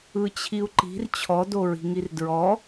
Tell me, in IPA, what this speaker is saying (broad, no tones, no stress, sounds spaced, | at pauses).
ɯ t͡ɕʰ i u̯ ǃ i̤ r t͡ɕʰ ɔ d o ɹ i̤ ŋ i r d ɹ ɔ